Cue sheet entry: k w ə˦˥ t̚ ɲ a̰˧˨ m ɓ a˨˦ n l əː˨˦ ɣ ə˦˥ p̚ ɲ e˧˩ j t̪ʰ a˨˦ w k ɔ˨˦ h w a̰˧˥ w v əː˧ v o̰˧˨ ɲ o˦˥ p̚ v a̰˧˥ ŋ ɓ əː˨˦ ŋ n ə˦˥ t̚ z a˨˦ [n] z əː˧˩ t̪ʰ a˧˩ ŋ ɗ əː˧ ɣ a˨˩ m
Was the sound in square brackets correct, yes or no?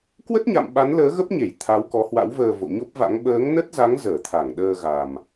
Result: no